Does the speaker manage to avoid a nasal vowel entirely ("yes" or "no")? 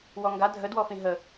no